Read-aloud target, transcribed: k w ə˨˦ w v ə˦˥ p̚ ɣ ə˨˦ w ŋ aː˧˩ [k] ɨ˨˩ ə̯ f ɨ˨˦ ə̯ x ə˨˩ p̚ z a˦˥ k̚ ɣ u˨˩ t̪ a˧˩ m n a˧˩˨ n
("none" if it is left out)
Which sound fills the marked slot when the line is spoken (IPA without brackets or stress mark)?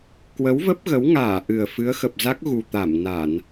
ʔ